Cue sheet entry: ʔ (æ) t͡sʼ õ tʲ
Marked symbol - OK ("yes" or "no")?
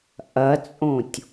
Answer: no